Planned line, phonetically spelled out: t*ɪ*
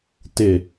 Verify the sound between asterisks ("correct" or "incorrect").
correct